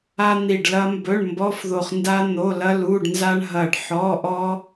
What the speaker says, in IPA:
a˥ n̪ i˦˨ ɖ l ɐ˥ m b ɵ˧˥˧ ɳ m b ɔ˧˥˧ f ð o˦˨ χ n d a˥ n̪ o˧˥˧ l ɐ˥ l u˧˥˧ ɖ n z a˥ ɳ ɦ ɐ˦˨ ɖ ħ ɔ˧˥˧ ʔ ɔ˥

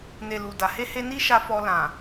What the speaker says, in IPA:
n e˨ l u˨ d a˨ h e˧ h e˧ n i˧ ʃ a˧ f ɔ˧ l ã˨

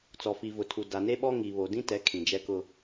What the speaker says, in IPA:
t͡s ɔ˨ f i˨ v ʊ˨ tʰ u˨ d a˨ n e˦ ɓ ɔ˦ ŋ i˨ β o˨ d ĩ˦ t ɛ˨˦ kʰ ĩ˨ d͡ʒ ɛ˦ k ʊ˦

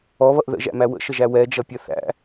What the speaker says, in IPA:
ɔ β ʌ ʔ ð ə̰ ʒ æ̰ m æ w ə̰ ʃ ə ʒ æ w ɛ d͡ʒ ʌ pʲ ʌ θ æ̰

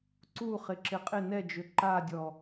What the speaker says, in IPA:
ǀ u χ ɪ ǁ ɪ qʼ ɪ n ɛ d͡ʒ ʏ ǃ a dʲ ɔ

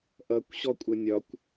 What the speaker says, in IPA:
ʔ ʌ kʷ ɕ ɔ kʷʼ ə nʲ ɒ kʷ

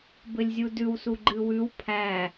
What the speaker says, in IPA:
b ɘ lʲ zʲ u d ʉ w s u ɡ͡ǃ ɨ w ʉ w pʰ æ

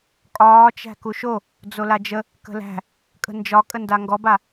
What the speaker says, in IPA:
kʼ ɒː t͡ʃ æ̤ k u ʃ o | d͡z o l a d͡ʒ ə | k ə̤ l æ̤ | kʼ ə̤ n d͡ʒ ɒ kʼ ə n d a ŋ ɡ ɔ b a

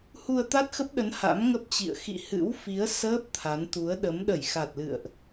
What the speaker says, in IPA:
h u˧ ə̯ t̪ a˦˥ t̚ x ə˦˥ p̚ ɗ ə˨˦ n h a̰˧˥ m ŋ ə˦˥ p̚ t͡ɕ ḭ˧˨ ə̯ x ḭ˧˨ h ɨ̰˧˥ w f i˨˦ ə̯ s əː˦˥ p̚ t̪ʰ a˨˦ n t̪ u˨˦ ə̯ ɗ ə˨˦ m ɗ ə˧˩ j x a˨˩ t̚ l ɨ̰˧˨ ə̯ ʔ

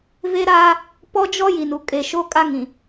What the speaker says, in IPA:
v e˦ ɾ aː˦ | p ɔ˦ d͡ʒ ɔ˦ j i˨ n u˨ kʼ e˨ ʃ o˦ kʼ a˦ ŋ ĩ˨

